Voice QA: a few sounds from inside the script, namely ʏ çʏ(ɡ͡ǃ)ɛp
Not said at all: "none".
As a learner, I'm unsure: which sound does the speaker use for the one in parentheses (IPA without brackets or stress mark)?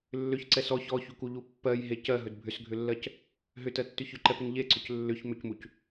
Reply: ǃ